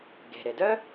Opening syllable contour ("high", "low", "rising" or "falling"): low